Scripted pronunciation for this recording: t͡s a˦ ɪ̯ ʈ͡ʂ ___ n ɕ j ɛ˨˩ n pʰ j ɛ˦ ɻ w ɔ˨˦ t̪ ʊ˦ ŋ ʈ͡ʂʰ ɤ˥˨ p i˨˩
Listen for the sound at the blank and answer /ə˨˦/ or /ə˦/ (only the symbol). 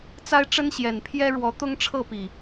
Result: ə˦